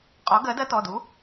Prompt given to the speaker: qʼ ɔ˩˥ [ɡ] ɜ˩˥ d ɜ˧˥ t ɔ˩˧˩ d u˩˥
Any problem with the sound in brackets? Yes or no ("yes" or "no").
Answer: no